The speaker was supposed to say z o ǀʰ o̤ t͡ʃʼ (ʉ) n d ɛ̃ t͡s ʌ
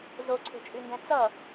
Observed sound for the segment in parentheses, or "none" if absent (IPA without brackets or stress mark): ʉ